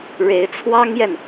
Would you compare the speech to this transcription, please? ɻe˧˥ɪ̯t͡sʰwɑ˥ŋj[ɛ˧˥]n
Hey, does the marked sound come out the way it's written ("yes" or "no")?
no